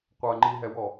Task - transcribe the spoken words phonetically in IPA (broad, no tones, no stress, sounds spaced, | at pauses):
qʷ ɐ ŋ͡ǃ i ɦ ɛ w ɔ